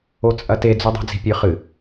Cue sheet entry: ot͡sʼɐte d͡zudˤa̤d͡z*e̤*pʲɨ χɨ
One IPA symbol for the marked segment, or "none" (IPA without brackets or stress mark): i̤